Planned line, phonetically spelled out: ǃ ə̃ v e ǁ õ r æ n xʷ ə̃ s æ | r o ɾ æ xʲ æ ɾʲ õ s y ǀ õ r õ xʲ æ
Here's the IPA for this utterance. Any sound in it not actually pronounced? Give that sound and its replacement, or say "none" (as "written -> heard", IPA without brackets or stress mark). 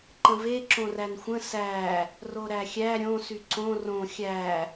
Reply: none